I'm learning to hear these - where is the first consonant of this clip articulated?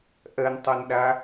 throat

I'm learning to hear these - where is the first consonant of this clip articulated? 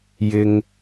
palate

